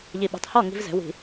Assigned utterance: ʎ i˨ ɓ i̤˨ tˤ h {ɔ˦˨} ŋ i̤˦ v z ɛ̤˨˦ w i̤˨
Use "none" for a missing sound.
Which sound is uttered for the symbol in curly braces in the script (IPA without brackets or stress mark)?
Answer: ɔ˦˨